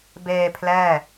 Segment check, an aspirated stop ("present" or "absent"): present